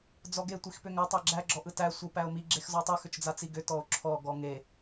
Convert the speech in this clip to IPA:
d͡zɔɡe tʷixpʏŋœ tˤæɡ͡ǁæ ɡ͡ǁɔʔɯtæ sʷɯpæo̯mi ɡ͡ǁexzɔtˤɯ xʏt͡ʃd͡zat͡siɡʏ tɔo̯ǁʰɔ ɡɔŋe

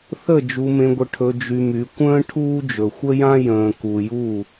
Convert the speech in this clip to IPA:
θə˦˨ d͡ʒu˧mẽ˧ɡʷə˧ ʈʰɵ˧ d͡ʒy˧my˨˦ kʷə̃ː˦ ʈʰuː˦d͡ʒɵ˨xʷə˦jã˦ jə̃ː˨ku˨ju˦˨

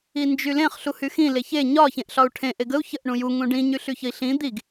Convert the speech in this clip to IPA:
ind͡ʒylẽχ ɬuhyxĩ leçe ɲɒ çẽʔɬɒu̯ʈʰẽ ʔeɡəu̯ çəʔ ɳũju ŋũɖĩ ɲyɬyçəi̯ɬĩ d̪iɡ

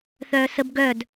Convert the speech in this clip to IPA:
θœːsəb ɡœd

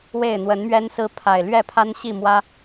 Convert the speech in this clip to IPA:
we˥˨ɪ̯n̪wə˨˦nmɥɛ˦nsɹ̩˦ pʰa˨˩ɪ̯ lɥɛ˥˨pʰa˦nɕi˥˨mwä˦

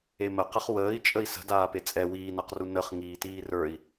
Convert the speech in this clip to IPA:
eməqəχ wəːi̯t͡ʃʼəi̯ sə̤daːpe t͡sʼɛ wiːnaqru nəχ ŋiːtiːrə˞i̯

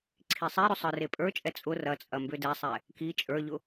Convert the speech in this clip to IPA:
ǀʰisˤeɾʏ sˤə˞repʼə˞t͡ʃʼɛ t͡sʼʊ rɐt͡sʼɐ mbʏdɛsˤɛ | ki t͡ʃʼə˞ʎʊ

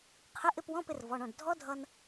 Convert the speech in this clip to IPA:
qʰɪ˧˥˧ʔɪ˧˥˧pwɔ̃˧˥˧pɪ˧r vɔ˩˧˩ɳɔ̃˧˩ɖ dʱɔ˦˥dʱʌ˧n

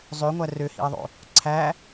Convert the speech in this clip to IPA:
zˤøŋʷæ røhḭɐ̯ðˤo̰ | ǀʰæ

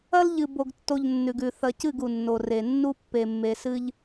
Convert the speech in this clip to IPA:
ɐ˦lʎɨ˨bo˨ɡtːo˨ʎ nːʉ˨ɡʉ˨ θɐ˨cɨ˦˨ɡ u˨nːo˨ re˨ nːu˦pːe˨mːe˨ sɨ˦ʎ

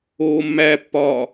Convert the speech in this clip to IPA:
oːmːæpːɒː

